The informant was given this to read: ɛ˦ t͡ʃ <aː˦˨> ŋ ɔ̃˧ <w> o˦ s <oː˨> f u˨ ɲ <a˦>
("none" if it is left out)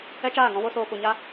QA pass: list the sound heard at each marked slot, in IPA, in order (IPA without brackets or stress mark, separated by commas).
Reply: aː˦˨, w, oː˨, a˧